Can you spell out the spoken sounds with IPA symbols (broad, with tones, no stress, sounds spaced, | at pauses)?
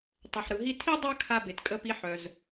tˤ œ˩ ħ ɾ ɯ˩ ɦ i˧ tʰ i˥ dˤ œ˥ kʰ a˧ b e˩ t kʼ ə˧ p i˧ ħ œ˩ z